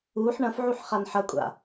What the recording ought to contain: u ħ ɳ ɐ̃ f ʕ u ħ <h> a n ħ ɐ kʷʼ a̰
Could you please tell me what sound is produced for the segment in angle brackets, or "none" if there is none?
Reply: χ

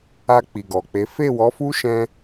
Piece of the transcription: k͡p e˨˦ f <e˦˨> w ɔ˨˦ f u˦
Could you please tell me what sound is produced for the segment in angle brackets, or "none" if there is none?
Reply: e˦˨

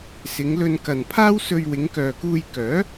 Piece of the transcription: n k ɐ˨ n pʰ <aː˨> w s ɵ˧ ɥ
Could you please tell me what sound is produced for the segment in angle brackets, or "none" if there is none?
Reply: aː˥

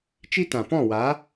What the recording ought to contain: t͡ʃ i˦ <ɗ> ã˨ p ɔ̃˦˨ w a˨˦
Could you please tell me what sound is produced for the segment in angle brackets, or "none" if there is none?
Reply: t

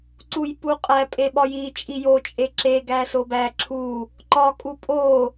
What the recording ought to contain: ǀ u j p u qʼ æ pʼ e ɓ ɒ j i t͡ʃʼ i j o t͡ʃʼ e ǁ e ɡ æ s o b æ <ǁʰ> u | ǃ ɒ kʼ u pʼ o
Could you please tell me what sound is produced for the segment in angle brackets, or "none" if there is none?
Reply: ǁʰ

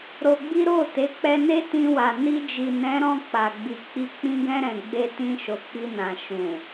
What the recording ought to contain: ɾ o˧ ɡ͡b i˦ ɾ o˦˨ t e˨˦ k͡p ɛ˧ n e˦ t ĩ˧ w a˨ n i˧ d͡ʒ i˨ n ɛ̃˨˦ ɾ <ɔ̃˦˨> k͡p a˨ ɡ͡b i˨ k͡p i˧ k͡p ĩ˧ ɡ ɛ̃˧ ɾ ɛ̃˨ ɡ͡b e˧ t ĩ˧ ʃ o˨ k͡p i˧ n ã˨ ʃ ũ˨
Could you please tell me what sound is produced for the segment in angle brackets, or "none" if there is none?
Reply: ɔ̃˦˨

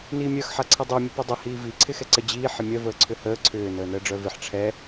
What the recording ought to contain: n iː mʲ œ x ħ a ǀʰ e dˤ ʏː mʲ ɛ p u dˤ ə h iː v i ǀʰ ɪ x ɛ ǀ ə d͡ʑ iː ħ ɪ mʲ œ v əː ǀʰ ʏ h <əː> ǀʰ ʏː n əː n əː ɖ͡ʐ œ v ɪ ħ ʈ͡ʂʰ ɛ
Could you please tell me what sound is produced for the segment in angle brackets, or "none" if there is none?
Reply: əː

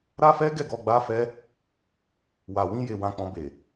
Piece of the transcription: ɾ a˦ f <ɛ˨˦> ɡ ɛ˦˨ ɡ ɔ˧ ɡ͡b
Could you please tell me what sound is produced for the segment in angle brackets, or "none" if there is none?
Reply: ɛ˦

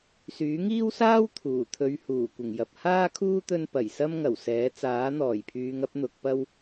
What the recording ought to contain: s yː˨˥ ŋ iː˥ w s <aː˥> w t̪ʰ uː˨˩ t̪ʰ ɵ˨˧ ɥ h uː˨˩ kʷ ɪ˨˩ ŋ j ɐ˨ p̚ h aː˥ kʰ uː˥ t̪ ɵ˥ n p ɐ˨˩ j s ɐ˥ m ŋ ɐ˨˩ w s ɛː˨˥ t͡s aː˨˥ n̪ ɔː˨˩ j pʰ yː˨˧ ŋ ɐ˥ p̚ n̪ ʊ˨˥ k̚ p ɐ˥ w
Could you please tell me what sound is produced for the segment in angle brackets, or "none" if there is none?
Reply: aː˥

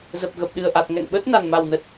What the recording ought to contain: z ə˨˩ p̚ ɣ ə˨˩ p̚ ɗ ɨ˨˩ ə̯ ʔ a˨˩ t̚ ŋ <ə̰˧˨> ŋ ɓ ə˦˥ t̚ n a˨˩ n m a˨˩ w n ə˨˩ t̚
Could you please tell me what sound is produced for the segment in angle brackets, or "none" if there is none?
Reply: ɛ̰˧˨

